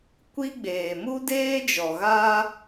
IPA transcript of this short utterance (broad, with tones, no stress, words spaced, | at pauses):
kʷi˦ɡ͡beː˨ mu˦deː˦d͡ʒɔ˨ɣa˦